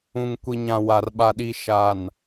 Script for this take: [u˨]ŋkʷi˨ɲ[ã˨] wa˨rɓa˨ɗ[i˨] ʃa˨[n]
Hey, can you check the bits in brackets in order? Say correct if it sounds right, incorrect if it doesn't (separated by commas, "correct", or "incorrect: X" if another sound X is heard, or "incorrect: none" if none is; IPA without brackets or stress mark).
incorrect: ũ˨, correct, correct, correct